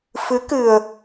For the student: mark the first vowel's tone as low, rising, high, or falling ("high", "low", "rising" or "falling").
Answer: rising